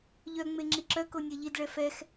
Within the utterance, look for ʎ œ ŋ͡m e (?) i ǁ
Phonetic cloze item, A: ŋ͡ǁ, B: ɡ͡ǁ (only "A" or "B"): A